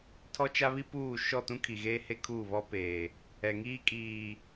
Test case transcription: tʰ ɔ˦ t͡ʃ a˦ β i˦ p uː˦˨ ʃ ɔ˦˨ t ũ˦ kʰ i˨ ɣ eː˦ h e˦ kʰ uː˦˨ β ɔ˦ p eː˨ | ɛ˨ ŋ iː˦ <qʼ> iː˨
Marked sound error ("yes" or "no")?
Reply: yes